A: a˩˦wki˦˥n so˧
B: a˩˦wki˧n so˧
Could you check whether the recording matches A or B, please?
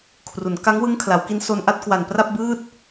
A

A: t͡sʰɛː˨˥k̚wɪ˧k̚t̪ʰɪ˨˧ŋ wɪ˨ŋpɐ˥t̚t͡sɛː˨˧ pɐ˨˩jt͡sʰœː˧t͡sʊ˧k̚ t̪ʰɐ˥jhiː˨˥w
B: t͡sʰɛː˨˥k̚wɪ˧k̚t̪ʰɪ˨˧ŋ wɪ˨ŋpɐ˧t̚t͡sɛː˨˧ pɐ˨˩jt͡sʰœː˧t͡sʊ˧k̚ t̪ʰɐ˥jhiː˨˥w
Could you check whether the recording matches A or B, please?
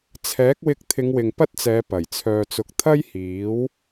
A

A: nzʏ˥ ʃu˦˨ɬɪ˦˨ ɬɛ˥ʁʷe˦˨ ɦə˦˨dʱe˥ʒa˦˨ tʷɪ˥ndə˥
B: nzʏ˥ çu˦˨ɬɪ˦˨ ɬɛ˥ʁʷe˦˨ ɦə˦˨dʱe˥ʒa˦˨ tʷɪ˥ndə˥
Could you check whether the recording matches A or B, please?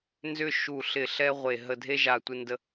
A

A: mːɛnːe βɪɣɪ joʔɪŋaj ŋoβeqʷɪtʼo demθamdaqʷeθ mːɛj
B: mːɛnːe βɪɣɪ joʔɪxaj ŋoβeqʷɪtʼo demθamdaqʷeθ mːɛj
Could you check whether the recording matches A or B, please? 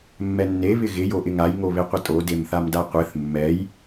A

